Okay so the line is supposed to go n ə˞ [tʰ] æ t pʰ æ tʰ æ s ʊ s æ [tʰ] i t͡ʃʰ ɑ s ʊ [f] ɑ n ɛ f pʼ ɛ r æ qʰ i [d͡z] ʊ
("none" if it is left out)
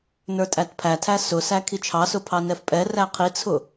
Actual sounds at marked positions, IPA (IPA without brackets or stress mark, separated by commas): tʼ, kʰ, pʰ, t͡sʰ